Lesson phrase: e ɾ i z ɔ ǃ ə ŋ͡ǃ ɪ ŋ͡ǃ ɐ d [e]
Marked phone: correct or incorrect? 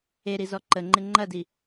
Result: incorrect